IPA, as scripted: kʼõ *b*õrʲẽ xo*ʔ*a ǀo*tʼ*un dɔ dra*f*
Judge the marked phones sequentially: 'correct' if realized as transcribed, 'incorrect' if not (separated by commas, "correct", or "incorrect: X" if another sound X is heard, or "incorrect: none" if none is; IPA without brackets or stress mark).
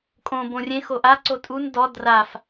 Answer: correct, correct, correct, correct